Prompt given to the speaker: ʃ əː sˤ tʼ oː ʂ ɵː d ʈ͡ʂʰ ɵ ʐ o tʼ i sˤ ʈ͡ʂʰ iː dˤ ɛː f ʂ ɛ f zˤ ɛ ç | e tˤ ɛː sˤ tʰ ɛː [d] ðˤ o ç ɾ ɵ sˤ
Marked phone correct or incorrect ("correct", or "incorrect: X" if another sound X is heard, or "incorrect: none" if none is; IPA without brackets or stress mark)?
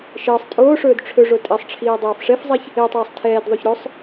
correct